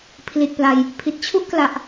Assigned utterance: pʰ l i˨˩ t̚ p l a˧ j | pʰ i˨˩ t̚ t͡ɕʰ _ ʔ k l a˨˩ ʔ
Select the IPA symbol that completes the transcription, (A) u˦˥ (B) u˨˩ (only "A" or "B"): A